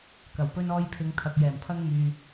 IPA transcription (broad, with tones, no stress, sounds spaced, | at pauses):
k ɐ˨˩ w p ɵ˧ n ɔː˧ j pʰ ɪ˨˧ ŋ t̪ʰ ɐ˨ k̚ j ɛː˨˩ m pʰ ɐ˧ ŋ m yː˨